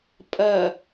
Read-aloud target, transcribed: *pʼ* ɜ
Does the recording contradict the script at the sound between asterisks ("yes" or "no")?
no